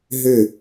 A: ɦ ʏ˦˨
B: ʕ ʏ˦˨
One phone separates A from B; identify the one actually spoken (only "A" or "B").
A